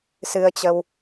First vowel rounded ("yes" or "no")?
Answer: no